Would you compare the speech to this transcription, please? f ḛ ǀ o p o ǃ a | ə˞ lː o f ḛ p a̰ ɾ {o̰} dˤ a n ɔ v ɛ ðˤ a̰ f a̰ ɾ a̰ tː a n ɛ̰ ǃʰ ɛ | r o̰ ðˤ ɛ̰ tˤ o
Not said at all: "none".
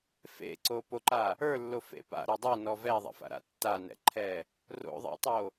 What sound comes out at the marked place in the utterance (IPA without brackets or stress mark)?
o